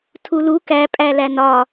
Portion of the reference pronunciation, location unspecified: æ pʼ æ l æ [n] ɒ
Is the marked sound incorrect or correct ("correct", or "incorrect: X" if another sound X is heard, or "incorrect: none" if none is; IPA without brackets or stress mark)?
correct